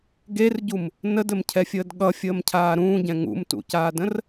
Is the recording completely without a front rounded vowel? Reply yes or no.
yes